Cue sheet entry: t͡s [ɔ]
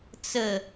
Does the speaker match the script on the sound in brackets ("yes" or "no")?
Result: no